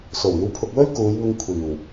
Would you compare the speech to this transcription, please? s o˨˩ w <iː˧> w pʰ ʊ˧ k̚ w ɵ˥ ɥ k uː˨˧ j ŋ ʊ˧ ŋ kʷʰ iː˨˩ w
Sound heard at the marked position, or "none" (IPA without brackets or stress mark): iː˧